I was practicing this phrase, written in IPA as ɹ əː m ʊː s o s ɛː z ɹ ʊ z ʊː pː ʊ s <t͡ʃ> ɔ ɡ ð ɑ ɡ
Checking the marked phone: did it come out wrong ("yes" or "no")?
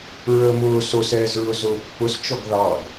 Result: no